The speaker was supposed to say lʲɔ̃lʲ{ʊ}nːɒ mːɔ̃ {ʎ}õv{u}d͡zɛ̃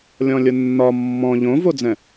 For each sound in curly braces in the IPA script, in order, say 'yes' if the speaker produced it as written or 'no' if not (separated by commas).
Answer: yes, yes, no